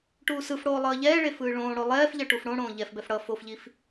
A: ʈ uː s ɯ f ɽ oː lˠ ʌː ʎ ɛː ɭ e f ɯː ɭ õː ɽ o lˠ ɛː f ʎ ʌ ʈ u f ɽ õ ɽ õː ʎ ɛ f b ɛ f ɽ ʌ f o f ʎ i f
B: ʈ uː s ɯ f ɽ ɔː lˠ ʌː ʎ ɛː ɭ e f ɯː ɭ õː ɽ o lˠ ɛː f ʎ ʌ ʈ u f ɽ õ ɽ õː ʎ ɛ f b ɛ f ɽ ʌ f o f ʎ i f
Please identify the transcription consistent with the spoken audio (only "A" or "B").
A